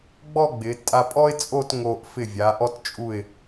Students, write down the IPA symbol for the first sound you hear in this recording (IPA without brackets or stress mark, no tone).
ɡ͡b